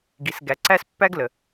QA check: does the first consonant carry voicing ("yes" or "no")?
yes